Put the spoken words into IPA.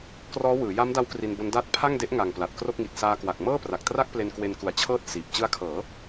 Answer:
k r ɔː˦˥ w ɯː˩˦ j a˦˥ m d a˦˥ w k r i˧ n b o˦˥ n d aː˦˥ t̚ pʰ a˥˩ ŋ d e˦˥ ʔ ŋ a˨˩ ŋ p l a˨˩ t̚ k r o˥˩ k̚ ŋ i˨˩ t̚ s aː˧ k w a˨˩ k̚ m ɤː˥˩ p r a˨˩ k̚ t r a˥˩ k̚ p l e˧ n k w e˧ n k u˨˩ a̯ t͡ɕʰ ɤː˥˩ t̚ s iː˨˩ p̚ t͡ɕ ɯ˦˥ a̯ kʰ ɤː˩˦

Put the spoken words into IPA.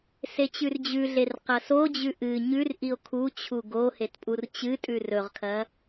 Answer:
s e t͡ɕ ʉ r d͡ʑ ʉ ɮ e r q ɐ s o d͡ʑ ʉ ʔ ɨ ɲ ʉ r ʔ i o̯ kʰ u t͡ɕʰ u ɡ o h e t pʼ u r t͡ɕ ɨ tʼ ʉ r ɵ ʁ kʰ ɐ

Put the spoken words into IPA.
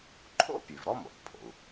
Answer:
ǃʰ o̰˥ pʲ ʉ˩ v ɾ ɔ˥ m o̰˩ t pʰ o̰˩ u̯

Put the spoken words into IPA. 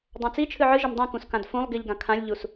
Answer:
dˤ ã t͡s i t͡ʃʰ ɨ ʕ ɨ ʒ ɘ m dˤ ɛ̃ k ũ s k ã d f ũ lˠ ɡ i ʎ ɡ ã kʰ ã lʲ ʎ u s

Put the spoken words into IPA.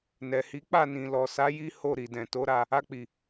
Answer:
n ɛ˨ h i˨˦ k͡p a˦˨ n ĩ˨ l ɔ˨ s a˨˦ j i˦ h o˦˨ ɾ i˨ d ɛ̃˨ t o˨˦ ɾ a˧ | a˧ k͡p i˨

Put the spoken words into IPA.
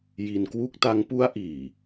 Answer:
j i˧ n k w u˥˩ k̚ t a˧ ŋ p u˦˥ a̯ ʔ iː˨˩

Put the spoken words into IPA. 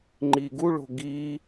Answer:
ŋ͡ǃ i ɡ u ɭ o̤ ɡ i

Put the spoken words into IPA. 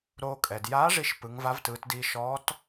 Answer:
ɾ oː˧ kʼ ɛ˩ d j aː˧˥ ʐ i˧ ʃ p ɯ˩˧ ŋ v a˧˥ v t ɯː˩˧ t d iː˧ ʃ ɔː˧˥ t

